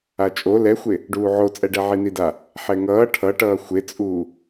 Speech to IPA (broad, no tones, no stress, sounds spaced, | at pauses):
a t͡ʃʼ o l ɛ xʷ e | ɖ uː ʕ o t͡sʼ ɛ ɖ ɛ ʕ i n i d a | ħ ɛ ŋ ʌː ʈʰ ʌ ʈ ʌː xʷ e t͡sʼ uː